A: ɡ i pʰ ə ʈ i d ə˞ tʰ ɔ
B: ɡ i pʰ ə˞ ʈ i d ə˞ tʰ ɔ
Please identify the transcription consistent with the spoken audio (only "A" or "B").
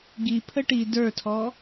A